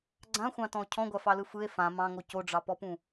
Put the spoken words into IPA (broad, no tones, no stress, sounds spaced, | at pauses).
ɡ͡ǀ ã xʷ ɑ̃ t ɔ̃ o̯ cʰ ɔ̃ ɡʷ a f ɑ l ɯ f ɯ e̯ f ã m ɑ̃ ŋ o c o ɖ͡ʐ ɑ p ɔ p ũ